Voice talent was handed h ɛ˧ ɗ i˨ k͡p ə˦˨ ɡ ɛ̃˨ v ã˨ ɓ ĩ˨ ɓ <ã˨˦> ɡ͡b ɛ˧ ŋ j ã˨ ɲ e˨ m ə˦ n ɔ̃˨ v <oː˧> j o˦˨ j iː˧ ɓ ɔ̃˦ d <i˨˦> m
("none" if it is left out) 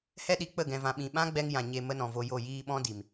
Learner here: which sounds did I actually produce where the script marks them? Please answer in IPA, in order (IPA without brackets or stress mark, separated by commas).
ã˦, o˧, i˨